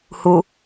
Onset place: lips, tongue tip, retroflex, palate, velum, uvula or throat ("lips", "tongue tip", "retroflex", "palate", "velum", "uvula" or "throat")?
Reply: throat